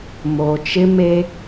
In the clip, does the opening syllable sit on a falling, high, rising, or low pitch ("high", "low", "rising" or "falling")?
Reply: low